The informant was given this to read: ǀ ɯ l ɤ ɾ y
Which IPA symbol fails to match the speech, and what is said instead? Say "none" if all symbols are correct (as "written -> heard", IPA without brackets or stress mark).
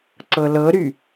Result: ɯ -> ɤ